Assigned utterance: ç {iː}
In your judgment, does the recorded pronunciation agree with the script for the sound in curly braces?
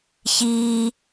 yes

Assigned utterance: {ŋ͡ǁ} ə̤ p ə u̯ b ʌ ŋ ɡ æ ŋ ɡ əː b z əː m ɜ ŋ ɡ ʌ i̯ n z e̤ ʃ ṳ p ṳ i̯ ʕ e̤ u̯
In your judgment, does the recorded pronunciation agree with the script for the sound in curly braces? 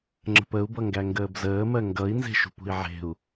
yes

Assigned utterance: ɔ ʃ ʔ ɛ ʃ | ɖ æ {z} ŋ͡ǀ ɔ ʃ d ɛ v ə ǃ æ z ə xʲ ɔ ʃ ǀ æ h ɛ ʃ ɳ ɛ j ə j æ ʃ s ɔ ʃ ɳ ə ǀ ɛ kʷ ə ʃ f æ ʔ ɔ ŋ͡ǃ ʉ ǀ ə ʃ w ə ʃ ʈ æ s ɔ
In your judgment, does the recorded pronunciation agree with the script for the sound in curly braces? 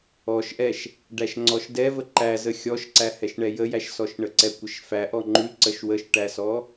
no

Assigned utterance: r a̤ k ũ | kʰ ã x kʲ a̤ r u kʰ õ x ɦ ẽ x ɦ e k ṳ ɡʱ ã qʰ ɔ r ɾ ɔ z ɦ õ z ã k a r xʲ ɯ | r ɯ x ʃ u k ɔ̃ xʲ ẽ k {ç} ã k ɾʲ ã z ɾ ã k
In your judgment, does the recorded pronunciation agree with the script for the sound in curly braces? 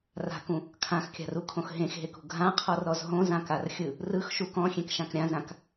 no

